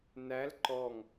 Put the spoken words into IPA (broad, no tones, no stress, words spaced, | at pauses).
næl ǃɔŋ